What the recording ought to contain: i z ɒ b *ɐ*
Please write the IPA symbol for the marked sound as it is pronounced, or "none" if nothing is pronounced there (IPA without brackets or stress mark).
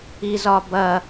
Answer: ɐ